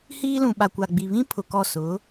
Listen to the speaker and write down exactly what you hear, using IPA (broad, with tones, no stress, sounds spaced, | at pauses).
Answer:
h iː˦ l ũ˨ ɓ a˨ kʷ a˨ ɡ͡b i˨ β ĩ˦ pʰ ʊ˨ k ɔ˦˨ s ʊ˨˦